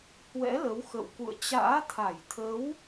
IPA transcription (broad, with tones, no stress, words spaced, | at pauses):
hwɛ̰˧˥lə˨˦w xə̰˧˨wkṵ˧˨ə̯ t͡ɕa̰ː˧˥t̪ʰa˧˩jt̪ʰə˨˦w